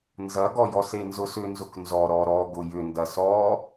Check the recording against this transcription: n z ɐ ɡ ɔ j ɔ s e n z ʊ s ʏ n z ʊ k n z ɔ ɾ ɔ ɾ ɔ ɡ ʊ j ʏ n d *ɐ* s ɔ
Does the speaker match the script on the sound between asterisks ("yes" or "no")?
yes